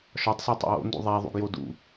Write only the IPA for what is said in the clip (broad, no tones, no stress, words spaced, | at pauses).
ʃɒtˤso tˤṵwo̰ndṵ ðˤæ ðˤṵɡjodṵ